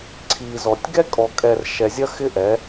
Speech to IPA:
ǀʰi˨zɔ˨tʲ ɡɛ˦kʼɔ˨kʼɛ˨r ʃɛ˨zʲɐ˦xɪ˦ʔɛ˨˦

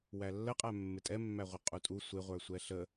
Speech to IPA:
wælːəqʼæ mːɪtʼɛmːæʁʷə qʼutʼu sʷɪʁʷə˞sʷɛ ɬə

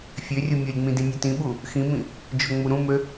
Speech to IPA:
fʲørʲu mʲolʲŋ͡mĩ dĩnʲøtĩɓu | xĩmĩ | d͡ʒoŋ͡muɾũmø

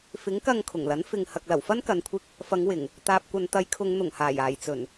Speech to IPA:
fɪ˨˥ŋkɐ˧ŋ kʰʊ˨˩ŋlɐ˨˥n fɪ˨ŋ hɐ˨k̚lɐ˨˩wfɐ˥n kɐ˨˧nkʷʰɪ˧k̚ | fɐ˨˧ŋwɪ˨˩ŋ | t̪aː˨p̚kʷɐ˨n t̪ɐ˨˧j kʰʊ˨˧ŋ n̪ʊ˨˩ŋhaː˨˩j aː˨˩jt͡sɵ˨˩n

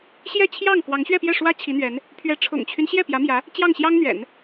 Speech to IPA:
ɕjɛ˥˧t͡ɕʰjɑ˥˩ŋ kwɑ˧˥ŋɕɥɛ˥˧pjɛ˥˩ʂwä˥ t͡ɕʰi˧˥n̪ɥɛ˧˥n | pʰɥɛ˧˥ ʈ͡ʂʰʊ̰˨˩ŋt͡ɕʰy˦n ɕjɛ˥˩pjä˧˥mjä˧˥ | t͡ɕjɑ˥˩ŋɕjɑ˥ŋn̪ɥɛ̰˨˩˦n

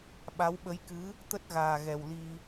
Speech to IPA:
ɓa˨˦wɓə˨˦jkɨ˨˦ | t̪ə˦˥t̚ɣaː˨˩ɣɛ˨˩w li˧

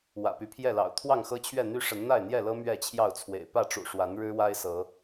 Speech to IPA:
wä̰˨˩py˨˦pʰjɛ˥˨lɑ̰˨˩ʊ̯ t̪ʰwɑ˥˨ŋxɤ˦t͡ɕʰɥɛ˥˨ n̪y˦ʂə˨˦n n̪a˥˨ɪ̯n̪jɛ˥˨lɤ˦ mɥɛ˥˨t͡ɕʰjɑ˥˨ʊ̯t͡sʰwḛ˨˩ɪ̯ pä˥˨ʈ͡ʂṵ˨˩ ʂwa˨˦n ɻɻ̩˦wa˦ɪ̯sɤ˨˦

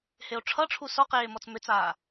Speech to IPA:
heo̯ʈ͡ʂʰʌʈ͡ʂʰu sɔqeː mɔt͡smʏt͡saː

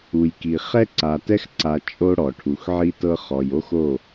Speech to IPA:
u˨jki˨ χɛ˦ǀa˨tɛ˦xǀa˨ t͡ʃʼo˦ ɽɔ˨ʈʰu˨xʕi˦tɤ˦ χɔ˨jo˦x o˦˨

